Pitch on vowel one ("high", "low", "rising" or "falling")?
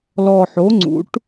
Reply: low